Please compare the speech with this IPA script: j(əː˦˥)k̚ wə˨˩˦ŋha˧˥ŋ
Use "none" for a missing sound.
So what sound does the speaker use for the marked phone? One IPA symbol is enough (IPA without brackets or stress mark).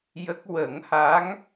ə˦˥